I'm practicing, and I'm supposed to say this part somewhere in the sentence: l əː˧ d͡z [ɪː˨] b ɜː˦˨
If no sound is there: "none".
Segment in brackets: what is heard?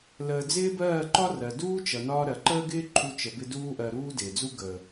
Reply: ɪː˦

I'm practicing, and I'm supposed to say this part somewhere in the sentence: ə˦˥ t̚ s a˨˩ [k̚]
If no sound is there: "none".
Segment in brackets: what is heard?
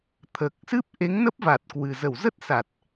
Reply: t̚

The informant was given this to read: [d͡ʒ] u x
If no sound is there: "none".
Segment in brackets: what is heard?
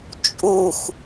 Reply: t͡ʃʼ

